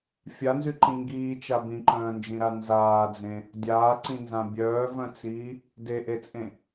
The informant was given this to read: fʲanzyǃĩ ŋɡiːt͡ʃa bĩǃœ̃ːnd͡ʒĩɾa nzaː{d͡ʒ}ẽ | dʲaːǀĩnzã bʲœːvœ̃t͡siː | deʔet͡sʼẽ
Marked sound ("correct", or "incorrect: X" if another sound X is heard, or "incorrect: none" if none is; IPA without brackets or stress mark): incorrect: d͡z